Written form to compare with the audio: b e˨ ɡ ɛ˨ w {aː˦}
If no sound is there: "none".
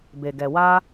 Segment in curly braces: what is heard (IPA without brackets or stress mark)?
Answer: aː˦